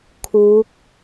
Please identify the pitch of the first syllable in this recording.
rising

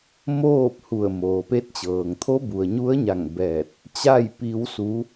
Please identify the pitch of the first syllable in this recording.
falling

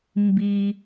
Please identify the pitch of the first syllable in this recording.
low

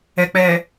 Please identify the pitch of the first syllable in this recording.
low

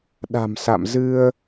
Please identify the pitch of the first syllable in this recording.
low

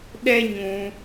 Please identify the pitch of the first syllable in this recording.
high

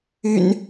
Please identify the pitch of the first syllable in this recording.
low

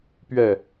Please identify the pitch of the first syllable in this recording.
falling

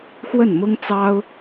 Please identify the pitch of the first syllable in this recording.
falling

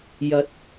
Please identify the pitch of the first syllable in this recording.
rising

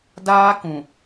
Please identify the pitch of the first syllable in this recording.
high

